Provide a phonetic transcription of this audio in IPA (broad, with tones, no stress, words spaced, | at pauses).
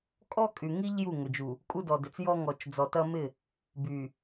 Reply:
kʼɔ˦kʼy˨ŋi˦ʎ ju˦˨ŋʏ˨d͡ʒu˨ | kʼu˦dɔ˨dʏ˨t͡s jɔ˦ ŋɔ˨t͡ʃd͡zɔ˨tɐ˦ mɪ˦˨ | by˨